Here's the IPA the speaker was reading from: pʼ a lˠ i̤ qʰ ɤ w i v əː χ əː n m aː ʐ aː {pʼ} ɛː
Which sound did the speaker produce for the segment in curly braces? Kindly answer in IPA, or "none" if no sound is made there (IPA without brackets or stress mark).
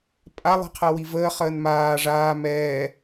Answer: m